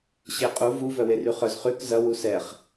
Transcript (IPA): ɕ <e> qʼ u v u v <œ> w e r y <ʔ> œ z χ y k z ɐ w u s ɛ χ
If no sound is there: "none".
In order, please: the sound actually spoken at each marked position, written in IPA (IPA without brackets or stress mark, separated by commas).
e, œ, χ